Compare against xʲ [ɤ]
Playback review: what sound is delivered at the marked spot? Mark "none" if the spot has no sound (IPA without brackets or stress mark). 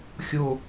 o